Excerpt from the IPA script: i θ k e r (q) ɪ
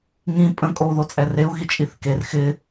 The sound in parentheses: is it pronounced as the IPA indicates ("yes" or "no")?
no